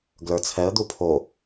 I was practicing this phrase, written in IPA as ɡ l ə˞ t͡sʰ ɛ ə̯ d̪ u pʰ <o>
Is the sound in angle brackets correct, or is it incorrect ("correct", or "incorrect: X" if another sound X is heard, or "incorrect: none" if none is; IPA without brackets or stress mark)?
correct